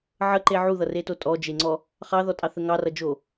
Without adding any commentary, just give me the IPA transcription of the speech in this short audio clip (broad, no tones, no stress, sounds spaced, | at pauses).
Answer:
ʕ ə ǃ e ʕ u ð ʌ r e t o tʼ ɔ d͡ʒ e ŋ͡ǀ ɔ | χ ɑ ð ɔ tʼ ɑ θ ə ŋ ɑ r ʌ d͡ʒ o